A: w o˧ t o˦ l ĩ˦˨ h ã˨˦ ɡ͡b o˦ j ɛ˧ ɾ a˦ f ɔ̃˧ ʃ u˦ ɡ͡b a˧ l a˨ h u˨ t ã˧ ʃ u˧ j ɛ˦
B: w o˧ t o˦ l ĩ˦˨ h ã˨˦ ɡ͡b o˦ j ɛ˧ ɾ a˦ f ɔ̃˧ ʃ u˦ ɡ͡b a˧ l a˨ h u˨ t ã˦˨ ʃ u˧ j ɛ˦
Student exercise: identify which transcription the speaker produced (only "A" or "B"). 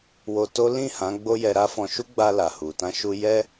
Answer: A